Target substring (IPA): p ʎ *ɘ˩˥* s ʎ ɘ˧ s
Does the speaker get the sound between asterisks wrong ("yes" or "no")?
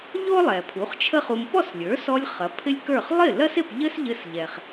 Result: yes